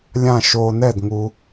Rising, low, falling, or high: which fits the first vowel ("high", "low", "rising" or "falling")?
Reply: falling